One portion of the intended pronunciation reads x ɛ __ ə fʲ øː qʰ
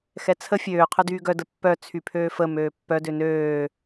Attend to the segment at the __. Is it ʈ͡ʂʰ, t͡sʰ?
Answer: t͡sʰ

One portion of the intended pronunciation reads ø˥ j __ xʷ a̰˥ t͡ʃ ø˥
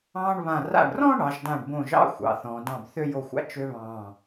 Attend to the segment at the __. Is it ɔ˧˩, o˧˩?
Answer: o˧˩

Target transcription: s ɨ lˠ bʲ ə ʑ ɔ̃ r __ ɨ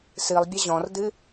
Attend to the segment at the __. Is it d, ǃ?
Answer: d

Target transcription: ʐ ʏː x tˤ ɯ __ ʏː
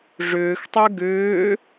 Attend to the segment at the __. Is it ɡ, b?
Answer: ɡ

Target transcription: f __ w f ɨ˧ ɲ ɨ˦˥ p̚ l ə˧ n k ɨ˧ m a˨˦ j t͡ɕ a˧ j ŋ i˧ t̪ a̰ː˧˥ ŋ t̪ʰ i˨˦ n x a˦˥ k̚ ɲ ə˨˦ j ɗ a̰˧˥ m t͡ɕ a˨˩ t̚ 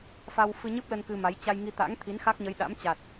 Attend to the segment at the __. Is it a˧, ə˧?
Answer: a˧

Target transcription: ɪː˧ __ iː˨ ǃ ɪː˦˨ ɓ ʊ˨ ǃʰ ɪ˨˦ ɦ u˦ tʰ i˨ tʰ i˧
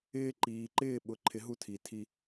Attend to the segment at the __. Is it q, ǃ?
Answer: ǃ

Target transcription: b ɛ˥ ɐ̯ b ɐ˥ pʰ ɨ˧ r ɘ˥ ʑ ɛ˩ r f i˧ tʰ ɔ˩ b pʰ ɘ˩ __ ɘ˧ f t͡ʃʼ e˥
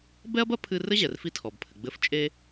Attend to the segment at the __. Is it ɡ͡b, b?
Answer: ɡ͡b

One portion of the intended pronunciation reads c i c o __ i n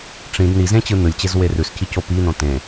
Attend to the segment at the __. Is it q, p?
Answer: p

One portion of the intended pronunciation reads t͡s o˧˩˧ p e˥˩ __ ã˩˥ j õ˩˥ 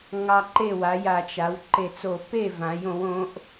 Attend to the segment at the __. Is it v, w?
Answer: v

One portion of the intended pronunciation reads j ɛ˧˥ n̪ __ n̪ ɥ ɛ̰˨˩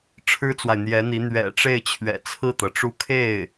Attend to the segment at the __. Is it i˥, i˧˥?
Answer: i˧˥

